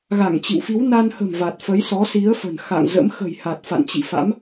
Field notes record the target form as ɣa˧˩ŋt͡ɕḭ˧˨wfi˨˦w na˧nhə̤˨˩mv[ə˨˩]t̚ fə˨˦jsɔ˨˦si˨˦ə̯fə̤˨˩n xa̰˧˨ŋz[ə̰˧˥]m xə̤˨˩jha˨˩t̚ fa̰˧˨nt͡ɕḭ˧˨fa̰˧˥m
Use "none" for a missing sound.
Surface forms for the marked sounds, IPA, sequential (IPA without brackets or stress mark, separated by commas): a˨˩, ə̰˧˥